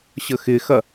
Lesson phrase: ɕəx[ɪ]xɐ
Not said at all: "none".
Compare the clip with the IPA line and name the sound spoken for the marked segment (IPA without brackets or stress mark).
ɪ